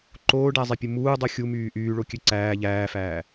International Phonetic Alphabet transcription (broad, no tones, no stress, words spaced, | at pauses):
ǃoːɖæzˤipʲɯ muːdˤɯ xʲumyː ʔyːɭokʲø ǀæː ʎæːfæː